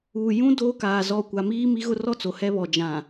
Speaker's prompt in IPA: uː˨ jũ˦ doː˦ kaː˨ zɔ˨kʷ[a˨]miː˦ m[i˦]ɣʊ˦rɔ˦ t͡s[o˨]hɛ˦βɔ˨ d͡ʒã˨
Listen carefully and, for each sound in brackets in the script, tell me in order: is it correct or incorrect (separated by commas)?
correct, correct, correct